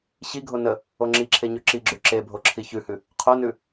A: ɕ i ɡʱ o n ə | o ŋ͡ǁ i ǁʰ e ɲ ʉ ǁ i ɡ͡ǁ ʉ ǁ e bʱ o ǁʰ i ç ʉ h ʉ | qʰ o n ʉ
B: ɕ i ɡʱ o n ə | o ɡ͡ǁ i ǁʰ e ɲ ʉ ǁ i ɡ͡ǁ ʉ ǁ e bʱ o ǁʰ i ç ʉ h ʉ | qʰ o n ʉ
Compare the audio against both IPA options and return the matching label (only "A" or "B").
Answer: A